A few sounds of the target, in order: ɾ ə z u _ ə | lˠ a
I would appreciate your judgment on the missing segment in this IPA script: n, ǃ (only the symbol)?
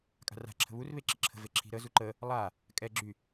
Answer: ǃ